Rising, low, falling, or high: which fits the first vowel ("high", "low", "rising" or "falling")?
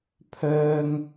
high